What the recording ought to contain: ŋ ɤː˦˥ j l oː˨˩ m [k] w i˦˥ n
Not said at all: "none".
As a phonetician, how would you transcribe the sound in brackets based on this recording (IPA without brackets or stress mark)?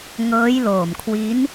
kʰ